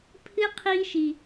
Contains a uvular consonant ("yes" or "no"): yes